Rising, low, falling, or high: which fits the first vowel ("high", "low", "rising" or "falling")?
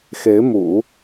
rising